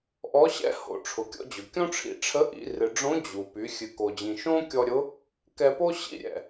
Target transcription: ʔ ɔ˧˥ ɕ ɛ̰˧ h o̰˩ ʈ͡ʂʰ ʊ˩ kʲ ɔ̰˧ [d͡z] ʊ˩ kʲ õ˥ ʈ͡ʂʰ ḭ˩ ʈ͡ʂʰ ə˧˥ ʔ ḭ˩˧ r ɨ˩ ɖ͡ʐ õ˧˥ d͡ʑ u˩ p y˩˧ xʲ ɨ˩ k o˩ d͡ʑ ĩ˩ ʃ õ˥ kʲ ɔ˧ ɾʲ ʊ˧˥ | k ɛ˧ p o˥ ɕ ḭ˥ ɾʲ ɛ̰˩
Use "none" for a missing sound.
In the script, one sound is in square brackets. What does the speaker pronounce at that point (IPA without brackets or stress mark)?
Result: d͡ʑ